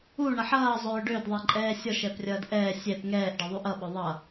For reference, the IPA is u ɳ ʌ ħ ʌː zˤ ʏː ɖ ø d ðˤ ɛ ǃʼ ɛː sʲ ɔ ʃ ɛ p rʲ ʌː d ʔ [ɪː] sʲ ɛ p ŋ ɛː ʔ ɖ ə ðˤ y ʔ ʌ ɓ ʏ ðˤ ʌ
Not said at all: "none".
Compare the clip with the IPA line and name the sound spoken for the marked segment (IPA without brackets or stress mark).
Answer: ɛː